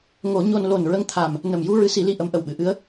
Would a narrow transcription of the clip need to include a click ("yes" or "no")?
no